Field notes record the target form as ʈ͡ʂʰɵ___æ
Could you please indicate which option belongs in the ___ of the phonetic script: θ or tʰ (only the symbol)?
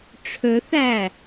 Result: θ